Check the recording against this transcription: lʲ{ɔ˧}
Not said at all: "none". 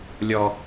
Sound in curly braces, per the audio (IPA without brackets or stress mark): ɔ˧